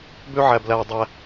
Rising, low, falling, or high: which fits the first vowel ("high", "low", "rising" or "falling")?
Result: high